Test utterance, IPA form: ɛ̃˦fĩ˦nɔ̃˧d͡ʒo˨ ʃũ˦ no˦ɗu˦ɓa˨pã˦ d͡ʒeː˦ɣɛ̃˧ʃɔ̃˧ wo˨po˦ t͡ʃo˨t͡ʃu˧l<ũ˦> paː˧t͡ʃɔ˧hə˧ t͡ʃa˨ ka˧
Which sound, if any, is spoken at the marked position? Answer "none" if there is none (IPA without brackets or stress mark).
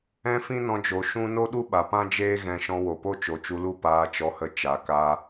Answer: u˦